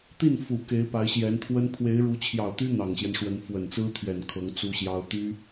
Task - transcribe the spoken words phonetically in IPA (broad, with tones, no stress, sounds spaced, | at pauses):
t̪ i˥˩ n f u˨˩ k e˧˥ ɪ̯ p a˧˥ ɪ̯ ɕ j ɛ˧˥ n t̪ʰ w ə˥ n pʰ w e˧˥ ɪ̯ ɻ u˧˥ t͡ɕʰ j ɑ˨˩ ʊ̯ t̪ y˥ n̪ ɑ˨˩ ŋ ɕ j ɛ˦ n ʂ w ə˧˥ n f w ə˨˩ n t͡s ɹ̩˥ t̪ʰ ɥ ɛ˨˩ n kʰ ɤ˧˥ ŋ t͡s u˥ ɕ j ɑ˥ ʊ̯ t̪ y˥